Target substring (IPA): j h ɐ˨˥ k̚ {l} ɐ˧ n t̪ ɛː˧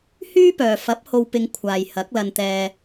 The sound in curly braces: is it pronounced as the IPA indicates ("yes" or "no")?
yes